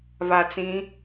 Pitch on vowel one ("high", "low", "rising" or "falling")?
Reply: low